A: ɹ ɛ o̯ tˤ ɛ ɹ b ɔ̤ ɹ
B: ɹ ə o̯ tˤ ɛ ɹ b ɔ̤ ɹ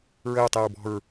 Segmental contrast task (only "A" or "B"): B